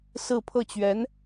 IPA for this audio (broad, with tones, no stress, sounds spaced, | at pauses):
s ɹ̩˥˧ pʰ ɤ˥˩ t͡ɕ ɥ ɛ˧˥ n